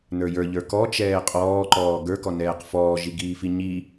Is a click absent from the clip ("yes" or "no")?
no